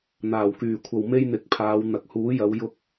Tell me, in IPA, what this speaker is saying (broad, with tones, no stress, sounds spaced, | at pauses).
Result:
n̪ aː˨˩ w k yː˨˩ kʷʰ ɐ˨ w m e˥ j n̪ ɪ˨˥ k̚ pʰ aː˨˧ w n̪ ɐ˨ k̚ h uː˨˥ j ɐ˨˧ w j ʊ˥ k̚